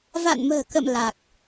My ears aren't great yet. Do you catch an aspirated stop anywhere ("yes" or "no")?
no